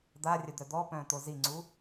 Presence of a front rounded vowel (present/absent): present